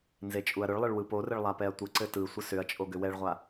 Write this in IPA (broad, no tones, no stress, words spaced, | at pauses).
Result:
nzet͡ʃʼuɐ̯ɾʏɭlˠɘɭ wɯporɘɭ lˠapɛɐ̯tʷɘǀɘ tɯsʷə sʏɐ̯t͡ʃʼo ɡʏwɛɭʁʷa